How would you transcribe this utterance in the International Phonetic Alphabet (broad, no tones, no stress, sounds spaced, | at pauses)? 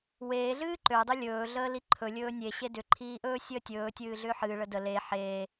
w eː ɮ ɨː ǃ ø dˤ ʏ lʲ ɵː ɮ əː l i ǃʰ ɵ lʲ ɵː nʲ e ɕ e d ʏ ǃʰ iː ʔ ɵː sʲ əː tʲ ɵː tʲ ɨː ɮ ʏː ħ ɨː ɭ ə d ə l e ħ eː